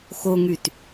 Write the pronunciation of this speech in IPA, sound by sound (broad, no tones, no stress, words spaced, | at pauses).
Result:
xoŋyt